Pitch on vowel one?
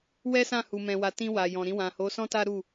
high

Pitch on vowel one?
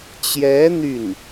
rising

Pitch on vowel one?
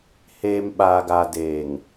low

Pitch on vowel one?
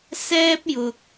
high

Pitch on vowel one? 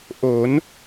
rising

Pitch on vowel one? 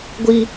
high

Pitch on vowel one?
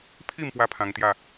falling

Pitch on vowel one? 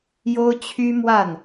high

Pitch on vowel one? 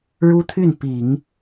high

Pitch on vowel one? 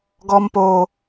high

